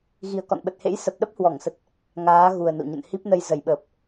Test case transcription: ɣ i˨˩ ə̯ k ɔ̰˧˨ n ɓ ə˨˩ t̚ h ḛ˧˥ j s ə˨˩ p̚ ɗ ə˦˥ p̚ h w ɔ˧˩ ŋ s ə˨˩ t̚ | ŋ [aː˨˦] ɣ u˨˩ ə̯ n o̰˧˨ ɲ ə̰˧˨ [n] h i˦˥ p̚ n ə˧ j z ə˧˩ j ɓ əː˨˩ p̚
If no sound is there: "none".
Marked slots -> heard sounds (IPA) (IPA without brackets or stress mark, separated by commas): aː˨˦, n